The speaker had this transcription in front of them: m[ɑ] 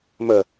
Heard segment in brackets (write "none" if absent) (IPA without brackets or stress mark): ə